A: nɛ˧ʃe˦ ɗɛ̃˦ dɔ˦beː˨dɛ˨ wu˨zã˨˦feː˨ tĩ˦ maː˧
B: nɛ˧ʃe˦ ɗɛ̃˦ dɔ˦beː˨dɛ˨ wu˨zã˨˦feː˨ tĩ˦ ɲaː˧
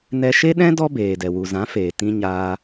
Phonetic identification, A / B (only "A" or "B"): B